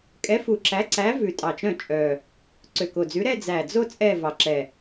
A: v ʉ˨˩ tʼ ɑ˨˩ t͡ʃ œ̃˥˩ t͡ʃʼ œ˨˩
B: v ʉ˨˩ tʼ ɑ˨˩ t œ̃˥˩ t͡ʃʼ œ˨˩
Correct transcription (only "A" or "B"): A